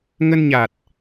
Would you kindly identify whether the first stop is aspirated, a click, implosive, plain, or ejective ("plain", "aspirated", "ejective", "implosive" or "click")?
plain